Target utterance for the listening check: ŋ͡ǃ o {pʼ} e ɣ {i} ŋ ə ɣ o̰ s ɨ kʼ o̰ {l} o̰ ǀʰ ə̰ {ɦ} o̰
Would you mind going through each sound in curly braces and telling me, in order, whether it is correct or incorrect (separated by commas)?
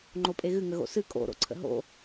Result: correct, incorrect, incorrect, correct